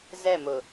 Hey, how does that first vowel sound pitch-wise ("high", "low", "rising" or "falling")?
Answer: falling